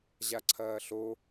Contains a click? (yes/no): yes